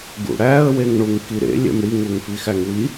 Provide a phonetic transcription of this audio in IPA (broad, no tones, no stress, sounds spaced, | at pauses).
ɡ ṵ ɽ æ ə̯ w e ŋ ɳ u ŋ k i ɾ ḛ lʲ ḛ m ɽ i ŋ u ŋ f i x æ ŋ w i